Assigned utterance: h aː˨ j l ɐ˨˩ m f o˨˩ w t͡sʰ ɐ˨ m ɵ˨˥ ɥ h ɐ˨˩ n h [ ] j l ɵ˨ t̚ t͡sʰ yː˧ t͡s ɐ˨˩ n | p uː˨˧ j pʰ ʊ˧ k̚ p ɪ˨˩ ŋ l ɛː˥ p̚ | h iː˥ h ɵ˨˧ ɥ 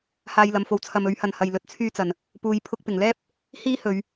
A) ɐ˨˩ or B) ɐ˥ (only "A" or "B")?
A